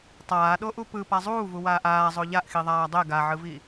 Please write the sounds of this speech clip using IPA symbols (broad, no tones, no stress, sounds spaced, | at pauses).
tˤ aː ɗ o ʔ u p ɯ p a zˤ uː v u w aː ʔ aː zˤ o ʎ a ʔ x i ðˤ aː dˤ e ɡ a ʕ ɯ v i